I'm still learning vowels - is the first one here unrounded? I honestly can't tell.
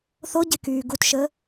no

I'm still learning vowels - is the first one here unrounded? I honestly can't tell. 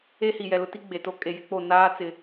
yes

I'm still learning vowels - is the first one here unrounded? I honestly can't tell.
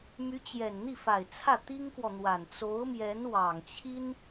no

